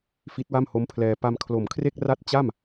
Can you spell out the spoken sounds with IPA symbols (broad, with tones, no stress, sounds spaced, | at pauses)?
f i˦˥ t̚ w a˥˩ m h o˦˥ m pʰ l ɛː˧ p a˧ m kʰ l o˨˩ m kʰ r e˥˩ k̚ r a˥˩ t̚ t͡ɕ a˥˩ m